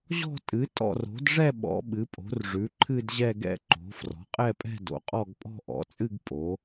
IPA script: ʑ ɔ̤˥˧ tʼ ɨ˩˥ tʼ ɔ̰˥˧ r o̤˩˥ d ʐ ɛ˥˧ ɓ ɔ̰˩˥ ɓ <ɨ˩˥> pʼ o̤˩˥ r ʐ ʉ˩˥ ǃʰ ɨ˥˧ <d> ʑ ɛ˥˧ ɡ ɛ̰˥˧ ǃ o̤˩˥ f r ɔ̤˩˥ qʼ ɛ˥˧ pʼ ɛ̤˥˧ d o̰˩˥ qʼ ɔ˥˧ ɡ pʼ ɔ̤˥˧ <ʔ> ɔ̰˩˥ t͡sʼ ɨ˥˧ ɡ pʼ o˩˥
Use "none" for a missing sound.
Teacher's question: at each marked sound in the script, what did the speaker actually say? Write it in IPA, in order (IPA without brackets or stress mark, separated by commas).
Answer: ɨ˩˥, d, ʔ